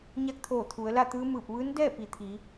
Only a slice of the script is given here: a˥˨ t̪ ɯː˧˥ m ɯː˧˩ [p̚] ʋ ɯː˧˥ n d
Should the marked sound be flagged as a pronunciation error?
no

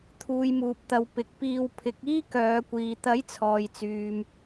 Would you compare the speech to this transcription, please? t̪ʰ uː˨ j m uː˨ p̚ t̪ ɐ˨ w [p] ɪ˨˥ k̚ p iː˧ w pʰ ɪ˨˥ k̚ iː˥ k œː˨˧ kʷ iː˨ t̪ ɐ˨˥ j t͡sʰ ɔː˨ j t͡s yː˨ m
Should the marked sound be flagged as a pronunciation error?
no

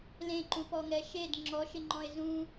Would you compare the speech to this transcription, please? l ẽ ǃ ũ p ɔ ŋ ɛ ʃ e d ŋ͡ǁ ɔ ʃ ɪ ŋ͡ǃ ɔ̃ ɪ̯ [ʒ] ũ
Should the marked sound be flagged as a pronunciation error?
yes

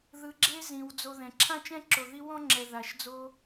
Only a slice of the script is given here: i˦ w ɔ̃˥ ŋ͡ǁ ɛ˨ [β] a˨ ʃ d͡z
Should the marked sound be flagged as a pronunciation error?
yes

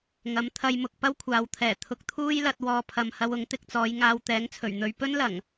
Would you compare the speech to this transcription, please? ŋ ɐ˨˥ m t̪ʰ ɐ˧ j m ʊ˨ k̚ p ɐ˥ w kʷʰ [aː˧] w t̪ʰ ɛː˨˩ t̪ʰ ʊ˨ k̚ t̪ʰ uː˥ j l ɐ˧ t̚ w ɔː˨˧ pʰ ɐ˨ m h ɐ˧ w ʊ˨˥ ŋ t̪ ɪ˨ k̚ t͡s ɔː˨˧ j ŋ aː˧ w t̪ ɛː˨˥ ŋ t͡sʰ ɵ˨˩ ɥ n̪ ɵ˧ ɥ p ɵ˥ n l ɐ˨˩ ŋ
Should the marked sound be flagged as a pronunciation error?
yes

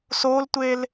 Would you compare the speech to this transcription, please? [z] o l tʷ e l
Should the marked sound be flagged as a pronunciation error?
yes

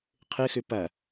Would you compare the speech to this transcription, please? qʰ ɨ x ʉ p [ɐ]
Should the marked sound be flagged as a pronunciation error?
no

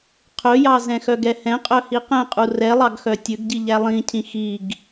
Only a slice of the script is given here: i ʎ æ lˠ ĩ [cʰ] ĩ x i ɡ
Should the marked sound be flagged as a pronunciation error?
no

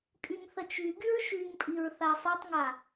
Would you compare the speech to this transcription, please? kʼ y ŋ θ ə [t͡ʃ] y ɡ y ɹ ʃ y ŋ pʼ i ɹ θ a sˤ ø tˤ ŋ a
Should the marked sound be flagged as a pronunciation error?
no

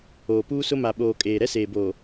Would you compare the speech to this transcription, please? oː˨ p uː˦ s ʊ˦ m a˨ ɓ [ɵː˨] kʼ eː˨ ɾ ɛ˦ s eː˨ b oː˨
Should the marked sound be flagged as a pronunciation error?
yes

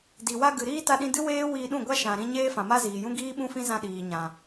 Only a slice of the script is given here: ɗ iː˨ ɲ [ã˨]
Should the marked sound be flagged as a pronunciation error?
no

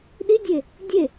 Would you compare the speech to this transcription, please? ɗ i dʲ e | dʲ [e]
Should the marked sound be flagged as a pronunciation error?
no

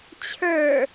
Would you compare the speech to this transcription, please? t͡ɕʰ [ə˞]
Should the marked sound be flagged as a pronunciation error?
no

